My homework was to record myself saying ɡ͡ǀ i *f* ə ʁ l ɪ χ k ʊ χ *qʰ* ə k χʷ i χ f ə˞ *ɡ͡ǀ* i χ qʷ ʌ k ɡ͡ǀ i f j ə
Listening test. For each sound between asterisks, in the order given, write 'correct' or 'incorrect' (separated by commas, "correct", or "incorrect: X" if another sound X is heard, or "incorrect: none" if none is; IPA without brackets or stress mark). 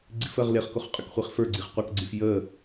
correct, incorrect: qʼ, correct